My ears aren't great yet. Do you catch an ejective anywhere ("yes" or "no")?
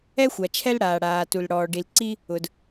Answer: no